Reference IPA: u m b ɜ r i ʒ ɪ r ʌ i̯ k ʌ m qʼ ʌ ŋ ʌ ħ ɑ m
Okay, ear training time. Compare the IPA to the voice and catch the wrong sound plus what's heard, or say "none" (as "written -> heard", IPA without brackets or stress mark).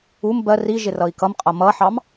ŋ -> m